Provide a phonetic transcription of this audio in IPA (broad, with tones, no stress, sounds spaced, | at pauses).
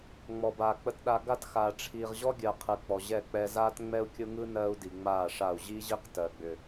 ŋ͡m ɔ˨ b aː˨ k͡p ə˨ t ɗ a˨ ɡ a˦ t x aː˨ ʈ͡ʂʰ iː˨ ʁ ʑ ɔ˦ ɡʲ ɜ˨ qʰ ɯ˨ k͡p ɔ˨ ʑ ɛ˦˨ k͡p ɛ˦ z aː˦ t ŋ͡m ɛ˦ u̯ kʲ ʊ˦ ŋ ɯ˦ n ɜː˦ u̯ d i˨ ŋ͡m aː˦˨ ʂ a˦˨ u̯ ʑ i˦ ʑ i˦ q t ɜ˨ ɡ͡b ʏ˨